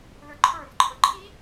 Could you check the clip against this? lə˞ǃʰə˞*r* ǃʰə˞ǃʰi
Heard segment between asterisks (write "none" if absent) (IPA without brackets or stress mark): r